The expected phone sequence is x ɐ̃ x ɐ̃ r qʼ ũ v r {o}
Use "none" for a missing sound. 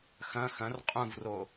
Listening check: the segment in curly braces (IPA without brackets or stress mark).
o